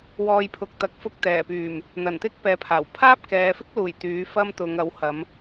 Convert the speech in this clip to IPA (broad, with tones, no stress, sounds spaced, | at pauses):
w ɔː˨ j pʰ ʊ˨ k̚ t̪ ɐ˨ k̚ f ʊ˧ k̚ t̪ ɛː˨˩ p yː˨˩ m | n̪ ɐ˨˩ n t̪ ɪ˥ k̚ p ɛː˨ pʰ aː˨˩ w pʰ aː˥ p̚ k ɛː˨ f ɪ˥ k̚ l uː˨˩ j t̪ yː˨˥ f ɐ˥ m t̪ ʊ˨˧ ŋ ɐ˨˥ w h ɐ˨˧ m